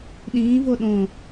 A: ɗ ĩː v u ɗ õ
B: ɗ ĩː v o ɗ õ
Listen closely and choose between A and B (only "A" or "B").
B